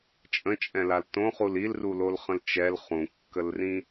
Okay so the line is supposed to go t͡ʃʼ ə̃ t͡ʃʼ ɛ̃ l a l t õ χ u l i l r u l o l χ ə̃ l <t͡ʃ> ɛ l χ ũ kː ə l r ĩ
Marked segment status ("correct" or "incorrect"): correct